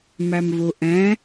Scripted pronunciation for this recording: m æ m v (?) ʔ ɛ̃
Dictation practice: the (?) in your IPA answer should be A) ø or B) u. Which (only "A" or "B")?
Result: B